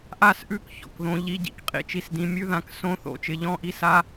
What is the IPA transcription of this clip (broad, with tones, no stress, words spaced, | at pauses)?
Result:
ʔa˥˩sʔʉ˥˩k çɔ̰˥˩k ðõ˩˥ʎi˧˥˧ɟḭ˥˩k qʼḭ˥˩t͡ʃi˥˩sdĩ˩˥ mʲʉ˧˥˧ðã˩˥ksõ˧˥˧ θo̰˥˩t͡ʃɪ˩˥ʎɔ̃˧˥˧ʔi˧˥˧s a˧˥˧